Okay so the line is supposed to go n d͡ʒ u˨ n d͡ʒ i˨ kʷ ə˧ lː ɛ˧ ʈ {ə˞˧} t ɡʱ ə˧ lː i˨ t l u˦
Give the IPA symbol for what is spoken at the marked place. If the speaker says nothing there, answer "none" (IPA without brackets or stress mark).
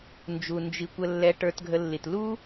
ə˞˧